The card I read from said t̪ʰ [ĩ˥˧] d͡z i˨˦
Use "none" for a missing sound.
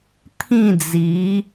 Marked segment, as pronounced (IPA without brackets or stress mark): ĩ˥˧